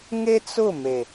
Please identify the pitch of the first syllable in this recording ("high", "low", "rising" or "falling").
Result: high